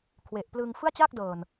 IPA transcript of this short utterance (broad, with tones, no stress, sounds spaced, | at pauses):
kʰ w e˨˩ ʔ p l ɯː˧ ŋ f ɯ˥˩ a̯ t͡ɕ aː˥˩ k̚ d ɤː˨˩ n